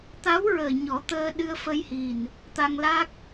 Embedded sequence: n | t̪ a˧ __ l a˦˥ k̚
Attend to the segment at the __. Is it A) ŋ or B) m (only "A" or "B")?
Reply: A